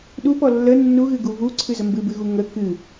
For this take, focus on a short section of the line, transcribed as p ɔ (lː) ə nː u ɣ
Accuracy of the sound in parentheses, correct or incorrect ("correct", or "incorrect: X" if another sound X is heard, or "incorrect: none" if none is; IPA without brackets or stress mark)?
correct